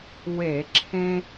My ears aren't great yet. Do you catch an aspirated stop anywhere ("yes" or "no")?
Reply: yes